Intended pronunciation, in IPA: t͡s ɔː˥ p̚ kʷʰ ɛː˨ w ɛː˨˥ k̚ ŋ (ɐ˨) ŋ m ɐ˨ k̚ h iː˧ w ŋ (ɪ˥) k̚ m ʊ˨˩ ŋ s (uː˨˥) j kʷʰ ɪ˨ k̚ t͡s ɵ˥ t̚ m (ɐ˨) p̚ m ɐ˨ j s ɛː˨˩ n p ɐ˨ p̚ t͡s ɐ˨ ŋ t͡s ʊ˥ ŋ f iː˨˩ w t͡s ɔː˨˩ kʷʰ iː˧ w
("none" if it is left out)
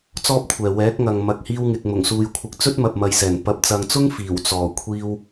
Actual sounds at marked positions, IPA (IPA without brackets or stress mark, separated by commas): ɐ˨, ɪ˨, uː˨, ɐ˨